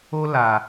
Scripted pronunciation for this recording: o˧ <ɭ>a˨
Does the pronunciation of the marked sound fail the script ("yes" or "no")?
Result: yes